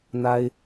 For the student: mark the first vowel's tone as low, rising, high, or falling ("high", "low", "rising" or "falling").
high